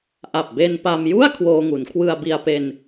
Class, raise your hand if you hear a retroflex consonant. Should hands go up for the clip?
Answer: no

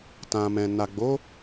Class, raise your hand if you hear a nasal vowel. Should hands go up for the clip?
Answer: yes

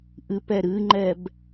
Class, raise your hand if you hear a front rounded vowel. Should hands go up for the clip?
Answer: no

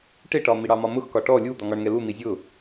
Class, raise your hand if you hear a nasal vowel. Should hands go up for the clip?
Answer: no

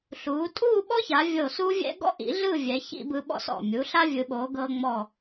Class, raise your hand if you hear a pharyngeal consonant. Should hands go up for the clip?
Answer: no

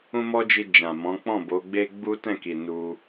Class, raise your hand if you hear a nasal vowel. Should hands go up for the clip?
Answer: yes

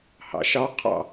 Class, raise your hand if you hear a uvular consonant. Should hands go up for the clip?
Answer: yes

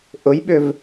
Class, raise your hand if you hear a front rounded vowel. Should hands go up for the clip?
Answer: yes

